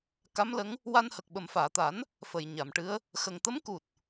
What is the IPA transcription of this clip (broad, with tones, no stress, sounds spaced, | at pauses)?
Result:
k a˧˥ m l ə˧˥ ŋ | w a˧ n h ə˨˩ k̚ ɓ ə˨˩ m f aː˨˩˨ t̪ a˨˩˦ n | f ə˨˩ j ɲ a˨˩˨ m ʈ ɨ˧˥ ə̯ | x ə˨˩ ŋ t̪ ə˧˥ m k u˨˩ t̚